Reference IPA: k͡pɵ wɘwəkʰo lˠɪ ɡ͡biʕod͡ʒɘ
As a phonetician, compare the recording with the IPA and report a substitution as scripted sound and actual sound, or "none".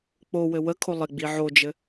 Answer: ɵ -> o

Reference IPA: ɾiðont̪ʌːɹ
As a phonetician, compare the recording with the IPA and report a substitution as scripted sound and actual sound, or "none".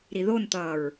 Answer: none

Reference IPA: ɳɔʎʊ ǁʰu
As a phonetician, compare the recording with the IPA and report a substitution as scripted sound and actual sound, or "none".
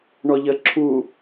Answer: ʊ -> ə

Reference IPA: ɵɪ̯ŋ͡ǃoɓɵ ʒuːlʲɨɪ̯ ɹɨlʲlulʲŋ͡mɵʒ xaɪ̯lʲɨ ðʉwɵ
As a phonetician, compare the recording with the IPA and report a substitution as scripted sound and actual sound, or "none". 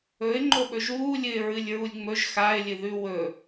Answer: l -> ɹ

